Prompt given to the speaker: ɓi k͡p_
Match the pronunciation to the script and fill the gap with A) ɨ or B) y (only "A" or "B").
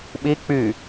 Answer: B